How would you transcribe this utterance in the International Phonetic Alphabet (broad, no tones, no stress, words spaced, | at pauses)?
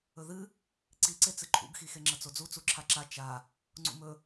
ɵðɨ | ǀiǀet͡sɨ ǃʰṵɡxixe ŋ͡ǁɐt͡sod͡zu t͡suǁʰaǁa t͡ʃa | ŋ͡ǀṵmɵ